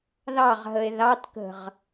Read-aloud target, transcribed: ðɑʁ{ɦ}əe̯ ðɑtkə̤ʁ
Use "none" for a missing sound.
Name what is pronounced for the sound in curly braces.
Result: ɦ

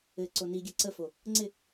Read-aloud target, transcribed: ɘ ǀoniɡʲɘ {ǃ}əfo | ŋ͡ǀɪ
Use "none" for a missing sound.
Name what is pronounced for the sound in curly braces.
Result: ǀ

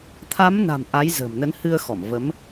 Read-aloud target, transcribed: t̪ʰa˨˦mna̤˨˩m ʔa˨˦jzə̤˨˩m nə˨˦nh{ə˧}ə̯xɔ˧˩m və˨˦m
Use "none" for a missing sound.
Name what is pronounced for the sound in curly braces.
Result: ɨ˧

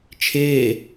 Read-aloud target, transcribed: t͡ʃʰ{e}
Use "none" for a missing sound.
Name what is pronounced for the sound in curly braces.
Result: eː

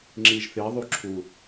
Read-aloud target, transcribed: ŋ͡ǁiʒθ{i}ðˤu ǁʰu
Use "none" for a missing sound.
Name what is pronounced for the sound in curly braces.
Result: i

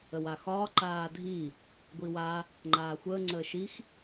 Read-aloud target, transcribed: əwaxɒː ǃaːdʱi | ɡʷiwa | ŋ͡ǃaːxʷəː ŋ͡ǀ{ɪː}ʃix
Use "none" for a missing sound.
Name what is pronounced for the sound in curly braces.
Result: əː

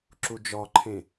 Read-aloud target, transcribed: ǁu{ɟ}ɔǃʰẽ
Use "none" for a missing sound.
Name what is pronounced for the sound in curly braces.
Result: d͡ʒ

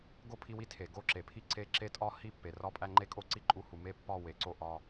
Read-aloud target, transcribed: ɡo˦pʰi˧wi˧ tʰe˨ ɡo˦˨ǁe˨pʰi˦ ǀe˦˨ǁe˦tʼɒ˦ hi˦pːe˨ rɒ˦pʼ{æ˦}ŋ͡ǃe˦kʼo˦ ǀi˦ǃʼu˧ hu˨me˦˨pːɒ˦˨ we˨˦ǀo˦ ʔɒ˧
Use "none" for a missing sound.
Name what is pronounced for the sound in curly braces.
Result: æ˦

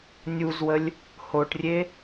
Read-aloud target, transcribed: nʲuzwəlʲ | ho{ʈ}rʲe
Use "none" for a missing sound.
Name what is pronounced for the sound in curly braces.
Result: ʈ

